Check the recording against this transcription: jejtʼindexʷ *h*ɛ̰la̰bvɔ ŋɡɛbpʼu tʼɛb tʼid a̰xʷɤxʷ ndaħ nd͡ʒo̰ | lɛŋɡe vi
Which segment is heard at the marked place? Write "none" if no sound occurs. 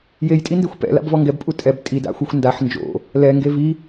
p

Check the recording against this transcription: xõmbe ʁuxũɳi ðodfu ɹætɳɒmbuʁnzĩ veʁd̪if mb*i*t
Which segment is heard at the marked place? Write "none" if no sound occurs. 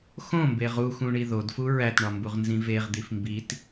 i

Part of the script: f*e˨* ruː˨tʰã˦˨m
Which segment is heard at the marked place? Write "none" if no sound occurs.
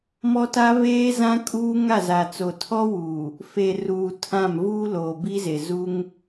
e˨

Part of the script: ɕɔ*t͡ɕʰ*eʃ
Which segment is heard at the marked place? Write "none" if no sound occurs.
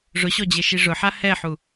d͡ʑ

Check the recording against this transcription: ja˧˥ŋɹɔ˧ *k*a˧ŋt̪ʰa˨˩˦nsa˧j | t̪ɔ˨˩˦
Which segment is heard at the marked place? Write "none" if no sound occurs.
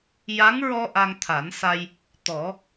ʔ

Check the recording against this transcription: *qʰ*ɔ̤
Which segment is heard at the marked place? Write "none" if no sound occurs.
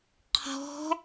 qʰ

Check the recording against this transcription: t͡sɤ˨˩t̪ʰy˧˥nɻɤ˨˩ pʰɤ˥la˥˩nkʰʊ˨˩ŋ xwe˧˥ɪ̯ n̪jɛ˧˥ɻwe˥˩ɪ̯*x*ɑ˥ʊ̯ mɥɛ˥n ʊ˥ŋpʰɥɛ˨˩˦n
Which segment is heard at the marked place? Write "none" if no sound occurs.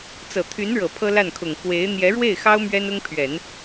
x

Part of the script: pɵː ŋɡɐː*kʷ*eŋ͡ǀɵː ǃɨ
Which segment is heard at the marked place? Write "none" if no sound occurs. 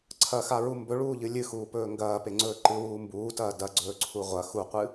p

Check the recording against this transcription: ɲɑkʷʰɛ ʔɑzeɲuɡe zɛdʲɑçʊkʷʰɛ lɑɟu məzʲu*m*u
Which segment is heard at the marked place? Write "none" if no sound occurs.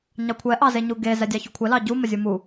m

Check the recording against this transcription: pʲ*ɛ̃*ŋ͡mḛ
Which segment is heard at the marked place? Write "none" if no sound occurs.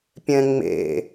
ɛ̃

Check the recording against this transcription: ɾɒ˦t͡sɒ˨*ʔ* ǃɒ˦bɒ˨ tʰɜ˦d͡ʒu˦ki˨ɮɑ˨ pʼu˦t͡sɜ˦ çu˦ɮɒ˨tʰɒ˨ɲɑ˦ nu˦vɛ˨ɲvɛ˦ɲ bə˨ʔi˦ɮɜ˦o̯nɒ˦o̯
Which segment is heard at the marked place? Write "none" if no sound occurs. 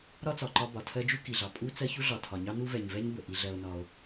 none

